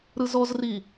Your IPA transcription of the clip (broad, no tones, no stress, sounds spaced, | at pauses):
ɾ ɯ z ɔ z r i